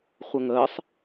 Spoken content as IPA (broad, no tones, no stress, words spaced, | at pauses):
χʷəŋəːsˤ